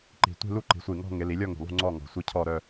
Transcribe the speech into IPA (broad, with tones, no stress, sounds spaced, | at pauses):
ǃ i̤˨˩ tʷ i̤˥˧ l u˥˧ ǃ i̤˩˧ sʷ i˨˩ ŋ ɔ̤˥˧ ŋ ɪ˩˧ l i˩˧ lʲ ɔ˥˧ ŋ ṳ˨˩ lˠ ṳ˥˧ ŋ͡ǀ ɔ˥˧ ŋ ɔ̤˨˩ sʷ i˥˧ cʰ ɔ˥˧ ɾ œ˥˧